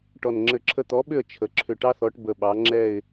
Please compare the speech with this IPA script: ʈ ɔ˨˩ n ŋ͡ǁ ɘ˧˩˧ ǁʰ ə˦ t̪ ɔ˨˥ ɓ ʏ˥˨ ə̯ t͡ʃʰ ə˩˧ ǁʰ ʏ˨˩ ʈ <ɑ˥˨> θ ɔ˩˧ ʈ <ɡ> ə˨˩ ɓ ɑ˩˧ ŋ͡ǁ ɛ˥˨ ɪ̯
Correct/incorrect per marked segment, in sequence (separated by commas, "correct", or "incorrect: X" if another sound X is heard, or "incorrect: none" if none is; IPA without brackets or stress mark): incorrect: ɑ˦, incorrect: b